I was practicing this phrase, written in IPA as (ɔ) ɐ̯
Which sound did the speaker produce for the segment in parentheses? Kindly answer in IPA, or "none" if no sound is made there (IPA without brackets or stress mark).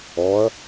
ɔ